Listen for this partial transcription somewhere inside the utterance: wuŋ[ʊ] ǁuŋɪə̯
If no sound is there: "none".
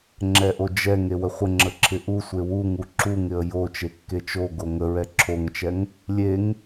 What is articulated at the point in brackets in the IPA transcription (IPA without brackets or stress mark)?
u